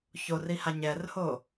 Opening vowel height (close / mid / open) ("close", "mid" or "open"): mid